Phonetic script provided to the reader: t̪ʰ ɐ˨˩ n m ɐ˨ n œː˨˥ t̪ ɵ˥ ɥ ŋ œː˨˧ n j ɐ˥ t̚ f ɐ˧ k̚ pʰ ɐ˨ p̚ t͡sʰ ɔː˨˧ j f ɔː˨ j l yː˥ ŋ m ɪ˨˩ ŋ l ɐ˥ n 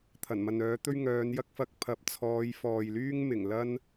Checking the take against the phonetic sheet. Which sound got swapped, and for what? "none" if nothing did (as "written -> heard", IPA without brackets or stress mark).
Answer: t̚ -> k̚